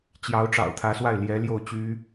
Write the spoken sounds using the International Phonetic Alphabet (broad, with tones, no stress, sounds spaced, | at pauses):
t͡ɕ j ɑ˧˥ ʊ̯ ʈ͡ʂ ɑ̰˨˩ ʊ̯ t̪ʰ ä˧˥ s w a˥˩ ɪ̯ l j ɛ˧˥ l j o˥˩ ʊ̯ t͡ɕ y˥